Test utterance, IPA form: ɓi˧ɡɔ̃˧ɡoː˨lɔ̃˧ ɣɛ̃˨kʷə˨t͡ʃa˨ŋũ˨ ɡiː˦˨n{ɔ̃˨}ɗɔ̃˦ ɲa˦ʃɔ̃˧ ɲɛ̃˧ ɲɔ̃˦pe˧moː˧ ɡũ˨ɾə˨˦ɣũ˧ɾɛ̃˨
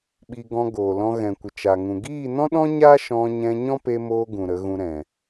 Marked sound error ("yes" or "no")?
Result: yes